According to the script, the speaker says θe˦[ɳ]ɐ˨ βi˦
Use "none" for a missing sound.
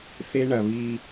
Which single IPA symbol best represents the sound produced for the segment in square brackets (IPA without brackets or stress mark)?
ɳ